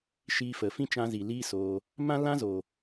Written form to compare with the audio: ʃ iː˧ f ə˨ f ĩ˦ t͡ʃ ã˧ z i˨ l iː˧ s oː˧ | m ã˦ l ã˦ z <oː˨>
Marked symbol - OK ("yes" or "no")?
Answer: yes